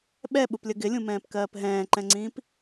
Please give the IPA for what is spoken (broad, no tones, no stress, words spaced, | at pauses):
ɓɛɓuplʲə ɡɪlʲũmɛ̃ːpkɜːp ɦɛ̃ːǃɛ̃ŋ͡ǀĩːp